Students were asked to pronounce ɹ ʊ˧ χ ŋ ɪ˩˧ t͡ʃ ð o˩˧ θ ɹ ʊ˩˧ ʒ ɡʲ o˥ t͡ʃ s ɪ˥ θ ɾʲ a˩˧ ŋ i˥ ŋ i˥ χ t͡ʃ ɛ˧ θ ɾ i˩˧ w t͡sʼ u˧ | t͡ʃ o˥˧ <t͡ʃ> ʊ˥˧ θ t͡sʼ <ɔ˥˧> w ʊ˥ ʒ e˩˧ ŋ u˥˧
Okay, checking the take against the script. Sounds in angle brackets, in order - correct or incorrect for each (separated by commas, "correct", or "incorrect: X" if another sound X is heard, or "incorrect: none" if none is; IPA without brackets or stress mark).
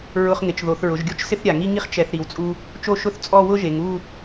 incorrect: ʃ, correct